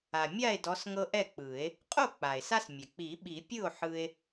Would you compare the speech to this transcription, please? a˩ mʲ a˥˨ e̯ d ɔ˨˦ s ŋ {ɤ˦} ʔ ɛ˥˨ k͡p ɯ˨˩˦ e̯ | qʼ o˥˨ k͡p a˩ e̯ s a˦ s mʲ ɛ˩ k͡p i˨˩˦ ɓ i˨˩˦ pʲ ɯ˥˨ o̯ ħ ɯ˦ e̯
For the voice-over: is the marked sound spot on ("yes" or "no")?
yes